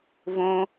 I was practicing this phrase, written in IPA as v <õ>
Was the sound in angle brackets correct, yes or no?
yes